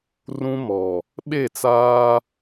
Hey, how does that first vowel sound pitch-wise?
high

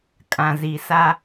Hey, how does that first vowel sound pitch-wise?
low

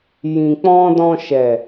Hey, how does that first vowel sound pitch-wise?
low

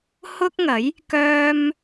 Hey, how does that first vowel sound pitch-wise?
high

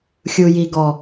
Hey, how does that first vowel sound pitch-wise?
low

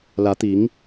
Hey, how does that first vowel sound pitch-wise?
rising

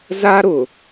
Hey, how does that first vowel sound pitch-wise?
high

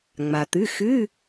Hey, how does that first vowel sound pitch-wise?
low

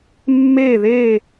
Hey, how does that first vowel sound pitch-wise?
falling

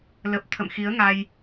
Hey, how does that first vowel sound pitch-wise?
low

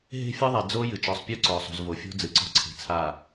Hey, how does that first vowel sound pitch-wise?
high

